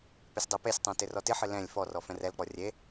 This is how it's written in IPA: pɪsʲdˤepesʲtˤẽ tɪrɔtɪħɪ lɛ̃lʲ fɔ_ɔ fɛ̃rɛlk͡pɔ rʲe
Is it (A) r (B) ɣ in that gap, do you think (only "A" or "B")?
A